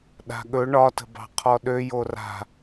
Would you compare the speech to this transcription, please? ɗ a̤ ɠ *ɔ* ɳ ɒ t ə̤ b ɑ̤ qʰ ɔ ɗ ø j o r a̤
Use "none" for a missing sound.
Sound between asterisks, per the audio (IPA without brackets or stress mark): ɵ